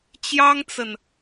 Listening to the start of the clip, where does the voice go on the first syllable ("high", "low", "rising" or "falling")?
high